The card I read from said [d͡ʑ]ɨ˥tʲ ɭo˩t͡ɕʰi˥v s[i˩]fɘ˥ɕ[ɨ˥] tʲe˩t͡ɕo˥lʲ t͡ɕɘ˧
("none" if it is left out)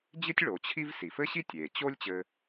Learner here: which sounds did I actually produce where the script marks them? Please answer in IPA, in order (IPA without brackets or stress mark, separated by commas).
d͡ʑ, i˩, i˥